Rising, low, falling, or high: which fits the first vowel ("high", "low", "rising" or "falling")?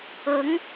rising